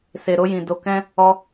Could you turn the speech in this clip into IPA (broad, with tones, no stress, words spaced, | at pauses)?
se˨ ɾo˧jĩ˨ do˨kɛ̃˧ | ɔ˧